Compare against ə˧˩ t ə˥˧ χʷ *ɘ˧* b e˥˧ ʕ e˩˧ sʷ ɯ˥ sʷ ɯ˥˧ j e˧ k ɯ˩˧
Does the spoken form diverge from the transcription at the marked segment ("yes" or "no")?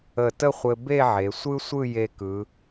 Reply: no